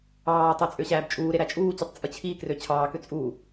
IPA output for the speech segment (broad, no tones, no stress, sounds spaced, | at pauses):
ɑː tˤ y t͡sʼ ø ɕ æː b t͡ʃʼ uː ɾ e ɾ æ t͡ʃʼ uː t͡ɕ u tˤ t͡sʼ ɯ t͡ɕʰ i k r ø t͡ɕʰ ɑː k ø t͡sʼ uː